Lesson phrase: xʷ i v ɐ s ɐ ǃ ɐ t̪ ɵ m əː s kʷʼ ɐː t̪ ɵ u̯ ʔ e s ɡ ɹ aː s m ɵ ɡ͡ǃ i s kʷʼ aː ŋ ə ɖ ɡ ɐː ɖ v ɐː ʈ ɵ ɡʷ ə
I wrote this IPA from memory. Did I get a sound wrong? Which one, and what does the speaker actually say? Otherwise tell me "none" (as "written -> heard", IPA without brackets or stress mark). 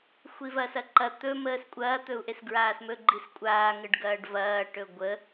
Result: none